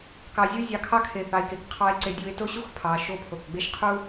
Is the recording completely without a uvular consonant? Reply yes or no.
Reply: no